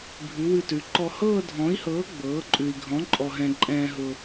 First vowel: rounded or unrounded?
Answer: rounded